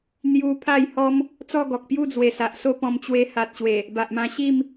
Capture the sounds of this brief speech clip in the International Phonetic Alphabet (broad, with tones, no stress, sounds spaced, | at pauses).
n̪ j u˧ pʰ a˥˧ j h ɔ˦ m | t͡s ɔ˥˧ ɡ ɔ˨ k̚ p j u˥˧ d͡z w e˨˩ s a˨ ʔ s o˦ p ɔ̃˧ m t͡ɕ w e˧ h a˨ t̚ ɕ w e˨˩ | b a˨ ʔ m ã˧ ɕ i˥˧ m